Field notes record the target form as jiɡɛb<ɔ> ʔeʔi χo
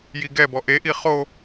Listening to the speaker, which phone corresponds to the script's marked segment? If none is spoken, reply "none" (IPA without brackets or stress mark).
ɔ